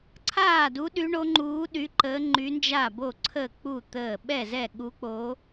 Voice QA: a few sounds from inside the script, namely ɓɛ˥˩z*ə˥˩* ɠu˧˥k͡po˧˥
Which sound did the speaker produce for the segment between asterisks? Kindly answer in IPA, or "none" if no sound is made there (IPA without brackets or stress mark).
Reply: ɛ˥˩